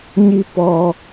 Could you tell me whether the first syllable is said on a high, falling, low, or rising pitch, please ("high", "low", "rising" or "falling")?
high